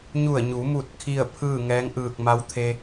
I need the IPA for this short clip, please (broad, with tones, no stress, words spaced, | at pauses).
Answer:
ɲu˧˩ə̯ɲu˩˧mu˧˩t̚ kʰi˥˨ə̯pʰɯː˥˨ŋɛː˧˥ŋ ʔɯː˧˩k̚ma˧˥wt̪ʰe˧